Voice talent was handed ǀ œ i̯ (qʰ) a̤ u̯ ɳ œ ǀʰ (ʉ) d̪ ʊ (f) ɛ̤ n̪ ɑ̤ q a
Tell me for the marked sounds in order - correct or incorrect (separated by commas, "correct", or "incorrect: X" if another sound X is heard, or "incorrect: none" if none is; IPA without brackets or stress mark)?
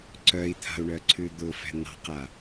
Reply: incorrect: t̪ʰ, correct, correct